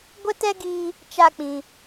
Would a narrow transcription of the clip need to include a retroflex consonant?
no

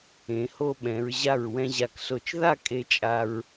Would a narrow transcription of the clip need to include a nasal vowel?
yes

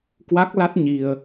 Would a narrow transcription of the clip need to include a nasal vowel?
no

